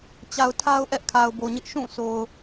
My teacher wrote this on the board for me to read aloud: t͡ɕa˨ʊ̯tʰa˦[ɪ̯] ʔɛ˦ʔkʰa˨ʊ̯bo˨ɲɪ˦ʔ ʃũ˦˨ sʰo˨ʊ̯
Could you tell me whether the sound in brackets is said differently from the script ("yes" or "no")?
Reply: yes